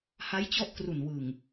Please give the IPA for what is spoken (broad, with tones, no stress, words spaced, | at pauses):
ha˦˥jt͡ɕɔ˦˥ʔkru˨˩nwɯ˨˩ŋ